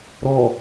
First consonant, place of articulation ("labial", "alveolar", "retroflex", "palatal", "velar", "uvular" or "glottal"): alveolar